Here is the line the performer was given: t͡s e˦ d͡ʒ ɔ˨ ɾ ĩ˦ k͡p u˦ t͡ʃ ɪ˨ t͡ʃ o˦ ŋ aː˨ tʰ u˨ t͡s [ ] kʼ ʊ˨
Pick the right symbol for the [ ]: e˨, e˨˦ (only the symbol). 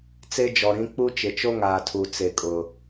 e˨